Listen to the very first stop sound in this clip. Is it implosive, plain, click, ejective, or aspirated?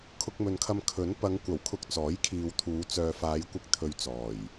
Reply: aspirated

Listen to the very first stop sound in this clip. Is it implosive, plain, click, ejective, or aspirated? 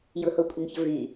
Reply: ejective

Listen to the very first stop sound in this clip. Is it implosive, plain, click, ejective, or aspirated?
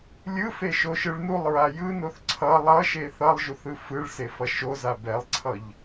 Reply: click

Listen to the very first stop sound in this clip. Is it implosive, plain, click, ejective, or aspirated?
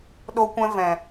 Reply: implosive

